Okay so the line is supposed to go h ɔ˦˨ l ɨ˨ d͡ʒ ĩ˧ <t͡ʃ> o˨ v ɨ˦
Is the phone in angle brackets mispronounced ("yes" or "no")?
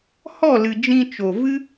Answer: no